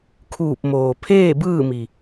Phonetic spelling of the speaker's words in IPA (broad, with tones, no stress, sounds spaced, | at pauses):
kʰ uː˧˩ p̚ m oː˩ pʰ eː˥˨ b ɯː˥˨ m i˩